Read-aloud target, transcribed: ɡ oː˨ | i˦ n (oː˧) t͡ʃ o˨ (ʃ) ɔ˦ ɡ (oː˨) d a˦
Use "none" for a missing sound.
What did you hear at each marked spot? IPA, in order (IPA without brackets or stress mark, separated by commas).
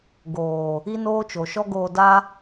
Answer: oː˦, ʃ, oː˧